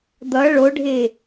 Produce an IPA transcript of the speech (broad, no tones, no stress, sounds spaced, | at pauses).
d̪ ʌ ɭ o ɖʱ e